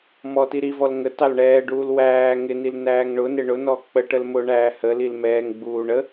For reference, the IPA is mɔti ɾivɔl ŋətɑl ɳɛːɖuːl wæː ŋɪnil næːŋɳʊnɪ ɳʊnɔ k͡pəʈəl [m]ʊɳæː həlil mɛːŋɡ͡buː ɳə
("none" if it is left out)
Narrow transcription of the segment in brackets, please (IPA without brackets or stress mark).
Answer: m